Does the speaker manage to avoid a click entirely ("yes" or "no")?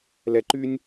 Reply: no